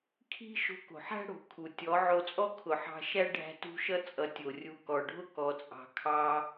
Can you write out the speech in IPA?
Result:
kʰ i̤˦ ʃ o̤˧ k o̤˨ ħ æ̤˦ ɽ o̤˨˦ kʰ u˨ tʲ ɔ˨˦ ʕ o˧ t͡sʼ ɔ˦ kʰ ʊ˨ ħ ɑ̤˧ ʃ æ˦ ɖʱ æ̤˦ t ṳ˦ ʃ ʌ˦ t͡sʼ ʌ˨ tʲ o˨ rʲ u˧ k ɔ˨ ɖʱ ʊ˦ k ɔ˧ t͡sʼ ɑ̤˧ kʰ ɑ˧

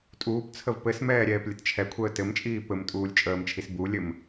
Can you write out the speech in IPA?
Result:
tʼ uː p t͡sʰ ə v p ɘ s m ɛː ɾʲ ɛː p lʲ ə t t͡ʃʰ ɛ kʷʰ əː t ɘ m t͡ʃʼ iː p ɘ m tʼ uː lʲ t͡ʃʼ əː m t͡ʃʰ i s b u lʲ ɘ m

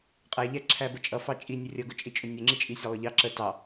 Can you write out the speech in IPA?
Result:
qʼ æ ʎ æ ǁʰ æ b ə t͡ʃʼ ʌ f ɑ t͡ʃʼ i nʲ ʊ rʲ ʌ ɡ ʊ t͡ʃʼ i t͡ʃʼ ʊ nʲ ʊ ŋ͡ǁ i t͡ʃʼ i sʲ ɑ lˠ ʊ ʎ ɑ ǁ ə t ɑ

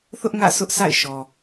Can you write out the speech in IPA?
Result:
θ ʊ˦ ʔ ŋ ä̰˦˨ s ʊ˦ ʔ s a̰˦˨ ɪ̯ ʃ ɔ˨

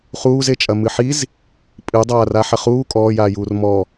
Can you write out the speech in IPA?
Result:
χ uː z e t͡ʃʼ ɐ m ɨ ħ i z | pʼ ɨ dˤ aː r a ħ ɐ χ uː kʼ ɔː j aː j uː r m ɔ

